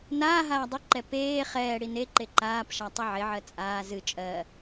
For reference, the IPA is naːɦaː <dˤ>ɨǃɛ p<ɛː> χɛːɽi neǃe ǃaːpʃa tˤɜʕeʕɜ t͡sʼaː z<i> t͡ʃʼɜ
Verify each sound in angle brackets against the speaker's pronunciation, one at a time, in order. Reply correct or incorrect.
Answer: correct, incorrect: eː, incorrect: ɨ

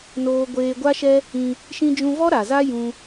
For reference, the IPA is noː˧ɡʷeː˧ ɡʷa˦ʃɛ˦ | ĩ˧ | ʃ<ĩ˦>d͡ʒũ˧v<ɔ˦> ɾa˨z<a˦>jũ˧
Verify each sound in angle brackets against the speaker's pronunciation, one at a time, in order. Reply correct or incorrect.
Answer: incorrect: ĩ˧, correct, correct

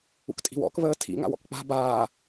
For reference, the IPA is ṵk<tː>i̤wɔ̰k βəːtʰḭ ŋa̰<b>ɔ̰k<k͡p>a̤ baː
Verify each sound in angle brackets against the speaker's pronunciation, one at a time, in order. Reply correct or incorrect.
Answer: incorrect: tʼ, incorrect: w, correct

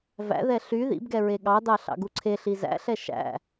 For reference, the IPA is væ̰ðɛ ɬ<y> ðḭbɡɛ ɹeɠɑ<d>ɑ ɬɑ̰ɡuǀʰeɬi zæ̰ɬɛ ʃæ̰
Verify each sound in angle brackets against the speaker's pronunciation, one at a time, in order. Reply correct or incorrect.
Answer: correct, correct

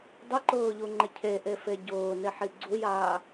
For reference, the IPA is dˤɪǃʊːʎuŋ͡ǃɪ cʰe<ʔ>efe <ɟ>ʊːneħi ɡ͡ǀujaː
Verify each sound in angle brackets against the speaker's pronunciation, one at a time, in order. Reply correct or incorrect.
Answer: correct, correct

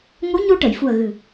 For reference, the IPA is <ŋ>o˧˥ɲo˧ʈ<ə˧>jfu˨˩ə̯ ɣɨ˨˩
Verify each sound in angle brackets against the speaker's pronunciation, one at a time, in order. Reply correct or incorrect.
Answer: correct, incorrect: ə˨˩˨

